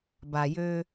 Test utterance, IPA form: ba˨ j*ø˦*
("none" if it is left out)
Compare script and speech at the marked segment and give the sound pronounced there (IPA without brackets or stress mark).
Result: ø˦